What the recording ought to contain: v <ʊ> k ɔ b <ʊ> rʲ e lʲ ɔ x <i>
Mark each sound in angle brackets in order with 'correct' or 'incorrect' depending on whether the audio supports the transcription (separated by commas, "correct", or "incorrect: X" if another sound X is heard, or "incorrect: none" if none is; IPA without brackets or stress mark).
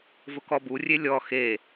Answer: correct, incorrect: u, incorrect: e